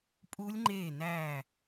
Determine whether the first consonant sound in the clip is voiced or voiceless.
voiceless